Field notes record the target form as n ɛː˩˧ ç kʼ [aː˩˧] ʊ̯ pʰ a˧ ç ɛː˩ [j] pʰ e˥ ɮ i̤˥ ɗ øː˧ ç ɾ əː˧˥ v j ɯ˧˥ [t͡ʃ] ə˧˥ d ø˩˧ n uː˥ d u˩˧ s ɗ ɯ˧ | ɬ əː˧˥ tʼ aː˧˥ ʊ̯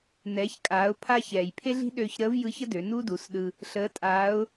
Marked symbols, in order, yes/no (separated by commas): yes, yes, no